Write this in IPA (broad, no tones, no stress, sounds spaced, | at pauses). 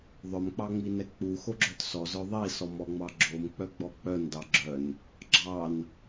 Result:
ðˤ œ m k͡p ɑ ŋ͡m i n ɛ k͡p u x o ɡ͡ǁ œ t s ɔ z œ ðˤ i s ɔ m ɔ ŋ͡m ɑ ɡ͡ǁ o m k͡p œ ɡ͡b ɔ k͡p œ n d ɑ ɡ͡ǁ œ n | ɡ͡ǁ ɑ n